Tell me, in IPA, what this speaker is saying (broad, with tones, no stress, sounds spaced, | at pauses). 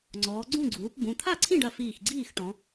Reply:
ŋ͡ǀ ɔː˩˧ ɡ͡ǀ ũ˥˨ ɡ͡ǀ uː˩˧ p b ũ˩˧˩ t̪ʰ a˥˨ ǀʰ ĩ˥˨ ɖ ɐ˧˩ f iː˧˩ x ɡ͡ǀ iː˥˨ x ʈ ɔ̃˩˧